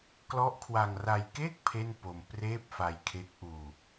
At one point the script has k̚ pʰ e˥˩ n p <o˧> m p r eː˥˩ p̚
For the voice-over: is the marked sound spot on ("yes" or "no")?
yes